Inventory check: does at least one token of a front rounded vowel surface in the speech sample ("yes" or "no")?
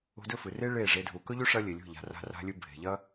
no